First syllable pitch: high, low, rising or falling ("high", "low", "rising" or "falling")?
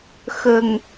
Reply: low